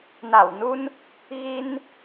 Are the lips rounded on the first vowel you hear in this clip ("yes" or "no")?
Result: no